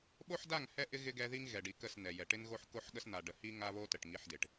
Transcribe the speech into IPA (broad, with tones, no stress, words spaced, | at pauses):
ɓo˦ħda˦˨ŋhɛ˦ʔɪ˦ ɣɪ˦ɡɛ˦ ði˦ŋɣɛ˨ɖi˨ kə˦˨snɛ˨jɛ˨ ʈɪ˦nɣo˦ħ ko˦ħɠə˦sn̪a˨ ɖə˨ hi˦ ŋa˦βo˦ tə˨ʈŋi˦ħdɪ˨ʈ